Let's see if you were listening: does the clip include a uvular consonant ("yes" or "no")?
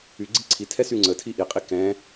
yes